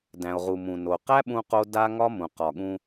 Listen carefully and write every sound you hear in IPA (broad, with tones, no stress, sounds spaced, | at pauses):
d æ̃˨ o̯ ʁ u˨ m ũ˨ n o˨ q æ˦ ɓ ũ˧ q o˧ d a˦ ŋ ɒ˦ m ũ˨ q ɒ˨ ɠ ũ˧